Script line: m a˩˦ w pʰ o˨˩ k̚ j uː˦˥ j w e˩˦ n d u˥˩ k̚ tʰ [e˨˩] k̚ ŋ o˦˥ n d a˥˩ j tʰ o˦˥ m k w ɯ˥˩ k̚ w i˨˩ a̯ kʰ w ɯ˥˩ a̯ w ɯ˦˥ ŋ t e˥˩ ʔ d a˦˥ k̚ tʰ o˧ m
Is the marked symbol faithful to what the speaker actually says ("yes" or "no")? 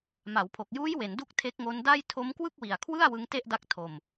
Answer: no